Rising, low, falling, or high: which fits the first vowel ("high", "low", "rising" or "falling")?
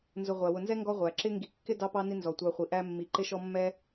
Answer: low